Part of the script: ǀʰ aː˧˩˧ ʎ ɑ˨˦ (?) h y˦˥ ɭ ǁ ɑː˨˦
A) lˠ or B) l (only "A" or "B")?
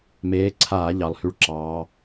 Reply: A